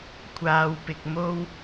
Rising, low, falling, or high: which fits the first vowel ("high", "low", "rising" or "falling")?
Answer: low